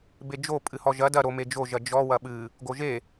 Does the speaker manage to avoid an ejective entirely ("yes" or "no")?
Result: no